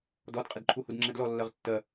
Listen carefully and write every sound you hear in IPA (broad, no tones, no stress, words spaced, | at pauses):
dɔdqʼɪdǃʰu hudŋ͡ǁɛdlɔlːɜʁ tːɜ